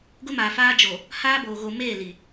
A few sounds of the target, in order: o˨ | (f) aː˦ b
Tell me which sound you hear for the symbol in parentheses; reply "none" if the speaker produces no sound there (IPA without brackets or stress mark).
h